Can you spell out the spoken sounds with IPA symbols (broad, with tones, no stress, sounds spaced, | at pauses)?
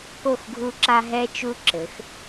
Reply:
k o˦˨ x ɡʱ u˦ ǁ a˦ ɦ ɛ˦ t͡ʃ u˦ ǁ ɘ˨˦ x